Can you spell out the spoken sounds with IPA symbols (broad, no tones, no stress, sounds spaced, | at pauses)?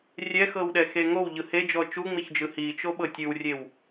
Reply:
rʲ ɛ x ɤ w ɗ ɛ x e ŋ o w ʎ ɯ h e d͡ʒ ɔ t͡ʃ u ŋ͡m i ç d͡ʒ ɯ h i t͡ʃ o ɓ ɤ tʲ ɯ w rʲ e w